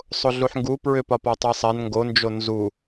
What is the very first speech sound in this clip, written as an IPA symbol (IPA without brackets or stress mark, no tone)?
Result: sˤ